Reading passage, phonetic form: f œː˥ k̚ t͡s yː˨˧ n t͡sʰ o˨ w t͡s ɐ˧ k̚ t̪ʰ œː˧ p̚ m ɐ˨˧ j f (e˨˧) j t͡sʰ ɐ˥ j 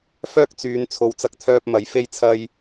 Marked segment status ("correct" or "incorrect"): incorrect